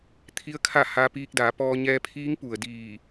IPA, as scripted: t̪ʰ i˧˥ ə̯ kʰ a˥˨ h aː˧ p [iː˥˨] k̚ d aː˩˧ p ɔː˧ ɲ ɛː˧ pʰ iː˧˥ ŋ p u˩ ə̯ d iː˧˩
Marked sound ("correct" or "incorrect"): incorrect